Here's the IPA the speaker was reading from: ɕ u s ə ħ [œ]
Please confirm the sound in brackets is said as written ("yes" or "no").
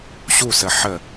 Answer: no